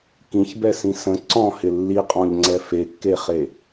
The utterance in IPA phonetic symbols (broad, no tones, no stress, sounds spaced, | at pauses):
k ĩ ç b ɛ s ĩ s ə̃ ǀ ɔ̃ h ɪ lː i qʼ ɔ̃ ʎ ŋ͡ǀ ɛ f e kː e χ e